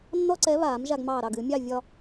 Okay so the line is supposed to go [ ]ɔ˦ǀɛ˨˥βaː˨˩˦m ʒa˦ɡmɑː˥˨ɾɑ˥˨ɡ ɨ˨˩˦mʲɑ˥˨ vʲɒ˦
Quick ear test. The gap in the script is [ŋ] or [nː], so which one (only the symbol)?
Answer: nː